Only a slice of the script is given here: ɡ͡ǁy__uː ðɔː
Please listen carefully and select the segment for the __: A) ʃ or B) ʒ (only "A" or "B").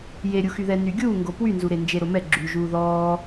B